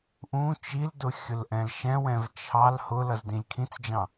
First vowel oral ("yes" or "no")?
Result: no